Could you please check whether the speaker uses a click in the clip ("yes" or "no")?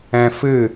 no